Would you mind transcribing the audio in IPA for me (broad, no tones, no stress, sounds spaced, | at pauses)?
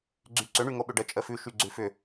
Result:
ɡ͡ǀ y ǀ ʏ ɳ y ŋ o ɓ ʏ ɖ ə t͡ʃʼ ə f ʉ ʃ y ɡ͡ǀ ʉ f ʏ